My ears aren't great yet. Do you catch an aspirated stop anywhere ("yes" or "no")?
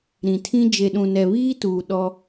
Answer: yes